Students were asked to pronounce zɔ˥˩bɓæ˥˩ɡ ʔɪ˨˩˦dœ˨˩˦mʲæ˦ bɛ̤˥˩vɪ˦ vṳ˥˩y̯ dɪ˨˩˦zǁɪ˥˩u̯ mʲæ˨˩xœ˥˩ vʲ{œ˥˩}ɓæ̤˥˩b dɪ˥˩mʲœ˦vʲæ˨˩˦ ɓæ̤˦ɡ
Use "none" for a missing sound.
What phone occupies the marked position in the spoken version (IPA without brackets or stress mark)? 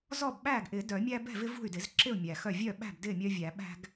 œ˥˩